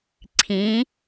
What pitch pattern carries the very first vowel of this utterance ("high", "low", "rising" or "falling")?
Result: rising